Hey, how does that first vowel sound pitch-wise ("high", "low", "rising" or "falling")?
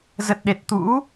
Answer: low